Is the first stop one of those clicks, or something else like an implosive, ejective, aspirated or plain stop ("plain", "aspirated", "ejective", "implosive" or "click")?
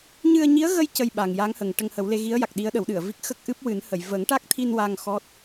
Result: plain